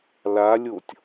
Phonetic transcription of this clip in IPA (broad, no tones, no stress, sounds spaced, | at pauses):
l a lʲ o tʲ